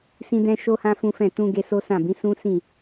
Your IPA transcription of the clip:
s ĩ˦ d ɛ̃˦ ʃ o˦ h ã˦ f ũ˦ f ɛ̃˦˨ t ũ˧ ɡ e˧ s o˦ s ã˦˨ b ĩ˨˦ s ũ˦ s ĩ˦˨

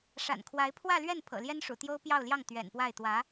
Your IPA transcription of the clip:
ʂ a̰˨˩ n kʰ w a˧˥ ɪ̯ pʰ w ä˥˧ l ɥ ɛ˥˩ n pʰ ɤ̰˨˩ l j ɛ˥ n ʂ ṵ˨˩ t̪ j o˥ ʊ̯ p j ɑ˥˧ ʊ̯ l j ɑ˥˩ ŋ t̪ ɥ ɛ̰˨˩ n p w a˥˩ ɪ̯ t̪ w ä˧˥

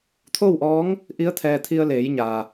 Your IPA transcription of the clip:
t̪ʰ o˥˨ w ʔ ɔː˧˥ ŋ | ʔ i˧˥ ə̯ t̪ʰ ɛː˧ t̪ʰ i˧ ə̯ l eː˩˧ j ɲ aː˩

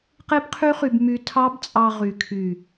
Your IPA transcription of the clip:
q e˦ b qʰ y˦ χ y˧ b m y˧ tʰ ɑ˦ b t͡sʼ ɑ˧ ʁ y˨ kʰ y˨

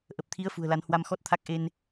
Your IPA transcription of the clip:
ʔ ə˨˩ p̚ t̪ʰ i˨˦ ə̯ f ṳ˨˩ ə̯ l a˨˦ n h w a˧ m x ɔ˦˥ t̚ t̪ʰ a˦˥ k̚ ʔ e˧ n

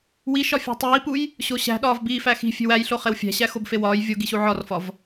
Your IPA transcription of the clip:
w i ʃ ɒ fʲ e̤ tˤ iː p u j | ɕ o ɕ æ̤ ɗ ɒː v b iː f æ x i̤ fʲ e̤ w æ j ɬ o χ e w fʲ æ̤ ɕ æ x o b f e w ɒː j vʲ o ɡ i ɕ u ʕ ɒ r f ɒ v

